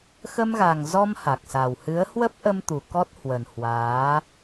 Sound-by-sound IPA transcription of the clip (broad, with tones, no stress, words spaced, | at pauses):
xə˧mɣa˨˩ŋzɔ˧m ha˨˩k̚sa˨˩w hɨ˨˦ə̯hwə˦˥p̚ʔə˧mt̪u˨˩ kɔ˦˥t̚hwə˨˩n hwaː˨˦